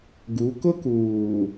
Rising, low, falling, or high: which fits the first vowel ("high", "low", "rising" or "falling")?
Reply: rising